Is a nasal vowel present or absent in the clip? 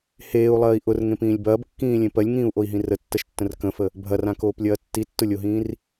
present